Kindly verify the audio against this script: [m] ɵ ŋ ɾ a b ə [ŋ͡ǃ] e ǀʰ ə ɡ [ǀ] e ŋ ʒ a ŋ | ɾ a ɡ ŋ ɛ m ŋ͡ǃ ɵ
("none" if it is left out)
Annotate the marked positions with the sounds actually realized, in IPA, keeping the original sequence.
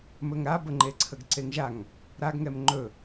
m, ŋ͡ǃ, ǀ

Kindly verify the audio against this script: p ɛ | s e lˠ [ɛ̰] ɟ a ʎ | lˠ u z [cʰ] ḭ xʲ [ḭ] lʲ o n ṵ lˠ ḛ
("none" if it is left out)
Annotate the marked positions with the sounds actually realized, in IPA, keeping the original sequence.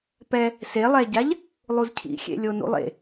ɛ, cʰ, ḛ

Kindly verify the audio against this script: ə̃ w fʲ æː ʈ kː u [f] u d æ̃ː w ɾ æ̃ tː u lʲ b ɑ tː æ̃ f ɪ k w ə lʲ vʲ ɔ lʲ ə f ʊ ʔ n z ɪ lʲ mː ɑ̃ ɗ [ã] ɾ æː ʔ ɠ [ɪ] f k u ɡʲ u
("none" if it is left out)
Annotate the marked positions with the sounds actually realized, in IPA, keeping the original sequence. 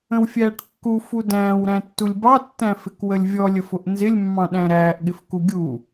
f, æ̃, ɪ

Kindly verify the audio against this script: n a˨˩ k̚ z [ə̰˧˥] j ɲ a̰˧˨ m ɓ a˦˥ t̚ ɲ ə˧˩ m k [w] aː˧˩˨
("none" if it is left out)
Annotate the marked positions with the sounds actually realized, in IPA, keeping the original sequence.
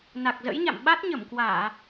ə̰˧˥, w

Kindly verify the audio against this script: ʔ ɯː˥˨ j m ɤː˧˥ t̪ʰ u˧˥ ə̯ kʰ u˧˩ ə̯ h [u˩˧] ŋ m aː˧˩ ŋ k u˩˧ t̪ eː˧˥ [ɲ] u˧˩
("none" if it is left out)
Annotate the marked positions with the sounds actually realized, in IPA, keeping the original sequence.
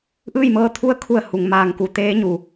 u˩, ɲ

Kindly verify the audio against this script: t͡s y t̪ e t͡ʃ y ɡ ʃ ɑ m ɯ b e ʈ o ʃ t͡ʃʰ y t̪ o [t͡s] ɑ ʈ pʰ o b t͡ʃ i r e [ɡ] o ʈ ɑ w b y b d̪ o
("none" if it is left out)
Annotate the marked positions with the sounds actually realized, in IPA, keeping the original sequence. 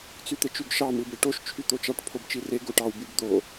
t͡ʃ, ɡ

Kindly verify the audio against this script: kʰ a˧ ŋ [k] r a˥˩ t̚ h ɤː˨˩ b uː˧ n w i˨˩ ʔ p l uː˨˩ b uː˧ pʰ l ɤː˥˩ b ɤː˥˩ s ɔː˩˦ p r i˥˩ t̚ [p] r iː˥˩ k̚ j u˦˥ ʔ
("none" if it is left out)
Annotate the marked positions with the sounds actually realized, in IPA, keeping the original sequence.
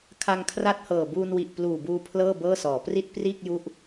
kʰ, p

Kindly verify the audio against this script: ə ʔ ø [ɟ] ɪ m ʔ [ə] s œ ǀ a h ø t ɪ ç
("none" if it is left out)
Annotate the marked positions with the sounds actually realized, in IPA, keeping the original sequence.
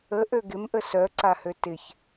ɡ, ə

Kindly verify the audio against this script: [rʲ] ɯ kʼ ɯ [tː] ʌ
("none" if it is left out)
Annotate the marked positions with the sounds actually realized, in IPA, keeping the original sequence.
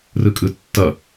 r, tː

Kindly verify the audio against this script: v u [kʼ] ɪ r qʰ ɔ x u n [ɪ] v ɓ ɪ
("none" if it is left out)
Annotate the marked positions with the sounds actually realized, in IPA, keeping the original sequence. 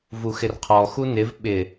x, ɪ

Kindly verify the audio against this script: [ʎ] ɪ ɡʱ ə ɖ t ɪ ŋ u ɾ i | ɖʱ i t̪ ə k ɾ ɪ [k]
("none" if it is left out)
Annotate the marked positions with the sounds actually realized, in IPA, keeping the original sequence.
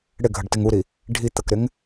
ɽ, ŋ

